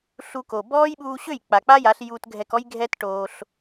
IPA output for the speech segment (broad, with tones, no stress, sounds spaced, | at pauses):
ɬ u˧ k o˨ b ɔː˦ j ɓ uː˧ ɕ ø˦˨ j k͡p a˨ k͡p a˦ j a˨˦ ɬ j u˧ t ɡʱ ɛ˧ k ɔ˦ j ɡʱ ɛ˦ t ʈ oː˧ ɬ